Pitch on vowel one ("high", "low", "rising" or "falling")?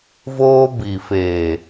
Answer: high